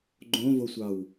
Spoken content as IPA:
ɡ͡ǃ õ v o sʷ ɑ w

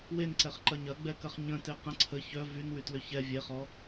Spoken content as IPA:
w e n ǀ ɛ χ ǃ ɐ ɲ ɐ ɡ͡b ɛ k ɐ χ ɲ ə̃ t e q ə̃ ǀʰ ə ç œ v y n w y t l ʏ ç ɛ vʲ e χ ɔ

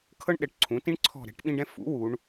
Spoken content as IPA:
kʰ ɤ˦ ɳ ɗ ɛ˩˧ ʈ ǀʰ ũ˩˧ t ĩ˦ ɳ ǀʰ ɔ̤˦˨ ɾ ɛ̤˨˥ ʈ ɓ ĩ˦ ɖ ɛ̃˦ f ṵ˨˥ w u˩˧ ɳ

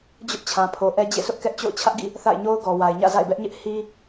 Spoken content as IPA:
d͡ʑ ʊ˦ ʔ t͡ɕʰ ã˨ pʰ o˨ ʔ ɛ˦ d͡ʑ ḛ˦˨ s ʊ˦ ʔ k ɛ˦ ʔ t͡ɕ o̰˦˨ ʊ̯ t͡ɕʰ ä˦ ʔ ɡ ḭ˦˨ | θ a̰˦˨ ɪ̯ ɲ o˦ ʊ̯ ɡ ɔ˨ w a˨ ɪ̯ ɲ ä̰˦˨ z a̰˦˨ ɪ̯ b ɛ˦ ʔ ɲ ɪ˦ ʔ h i˦

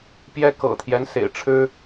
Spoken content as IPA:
p j ɛ˥ k ɤ̰˨˩ t̪ʰ j ɛ˦ n s ḛ˨˩ ɪ̯ ʈ͡ʂʰ ɻ̩˥

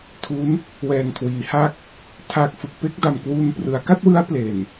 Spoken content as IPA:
tʰ u˦˥ n | w ɛː˨˩ ŋ kʰ w iː˩˦ h a˥˩ k̚ | tʰ a˨˩ k̚ f ɯ˨˩ k̚ p e˥˩ k̚ d a˨˩ m k w u˧ n p r ɯ˩˦ a̯ k a˥˩ t̚ w ɯ˦˥ a̯ p l e˨˩ n

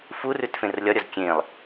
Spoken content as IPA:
f u r ʉ t f ẽ r lʲ ɒ ɾʲ ɒ z kʲ ẽ lˠ

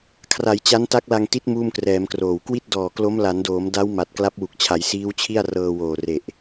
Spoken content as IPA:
kʰ r a˩˦ j t͡ɕ a˦˥ n t a˦˥ k̚ l a˧ ŋ t i˦˥ t̚ m uː˥˩ m k r ɛː˩˦ m k r oː˨˩ w k w i˥˩ t̚ d ɔː˨˩ k l o˦˥ m l a˩˦ n d oː˩˦ m d a˦˥ w m a˨˩ t̚ k l a˦˥ p̚ w u˨˩ k̚ t͡ɕʰ a˩˦ j s iː˦˥ w t͡ɕʰ i˥˩ a̯ r ɤː˧ w oː˨˩ r e˨˩ ʔ

